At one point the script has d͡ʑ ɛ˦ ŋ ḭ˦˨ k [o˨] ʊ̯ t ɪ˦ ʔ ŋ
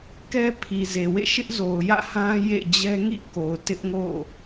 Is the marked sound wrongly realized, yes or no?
no